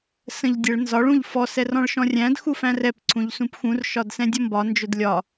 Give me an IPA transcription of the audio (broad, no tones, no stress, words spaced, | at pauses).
sə̃ʎdʲəɭ nzɒɭ ũʎfɔ sɛrɔ̃ɭʃɔ̃rʲæ̃d xufæ̃rɛp ǀʰũʎsũpxũr ʃɒdsɛ̃dʲʌmbɒ nd͡ʒʊdlʲɒ